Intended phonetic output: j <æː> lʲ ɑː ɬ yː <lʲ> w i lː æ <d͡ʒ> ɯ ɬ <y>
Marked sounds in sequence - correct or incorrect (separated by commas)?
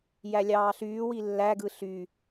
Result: incorrect, incorrect, incorrect, correct